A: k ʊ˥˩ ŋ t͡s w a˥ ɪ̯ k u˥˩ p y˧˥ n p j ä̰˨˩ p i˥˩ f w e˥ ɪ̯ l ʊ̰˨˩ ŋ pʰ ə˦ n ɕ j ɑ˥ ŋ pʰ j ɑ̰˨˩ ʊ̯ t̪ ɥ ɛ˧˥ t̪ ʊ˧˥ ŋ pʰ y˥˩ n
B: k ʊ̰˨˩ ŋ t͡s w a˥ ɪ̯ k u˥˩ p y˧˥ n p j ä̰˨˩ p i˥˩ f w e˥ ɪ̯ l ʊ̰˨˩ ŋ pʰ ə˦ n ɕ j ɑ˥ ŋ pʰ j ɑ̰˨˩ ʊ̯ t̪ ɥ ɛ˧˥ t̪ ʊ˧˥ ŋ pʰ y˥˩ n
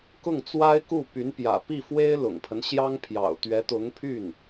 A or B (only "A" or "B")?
A